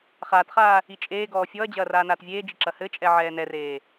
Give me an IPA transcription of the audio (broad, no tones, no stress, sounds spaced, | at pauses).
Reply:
χ aː t χ aː | i t͡ʃʼ eː ɡ ɔː fʲ ɔ ɐ̯ d͡ʑ ɐː r aː n aː t vʲ eː d͡ʒ i ǁ ɐ h ɘ t͡ʃʼ ɛ ʕ ɛː n ɛ r eː